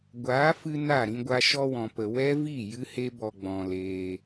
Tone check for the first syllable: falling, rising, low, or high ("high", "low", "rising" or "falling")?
rising